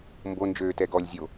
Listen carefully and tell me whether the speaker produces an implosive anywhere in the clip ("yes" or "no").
no